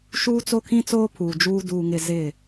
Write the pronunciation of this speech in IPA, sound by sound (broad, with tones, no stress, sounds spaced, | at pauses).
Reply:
ʃ uː˦ t͡s o˦ kʰ ĩ˦ t͡s oː˦ pʰ uː˨ d͡ʒ uː˦ d uː˦ ŋ ɪ˦ z ɪ˦˨